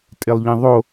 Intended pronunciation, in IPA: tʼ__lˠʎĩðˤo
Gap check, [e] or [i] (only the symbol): e